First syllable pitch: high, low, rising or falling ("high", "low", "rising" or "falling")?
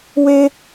high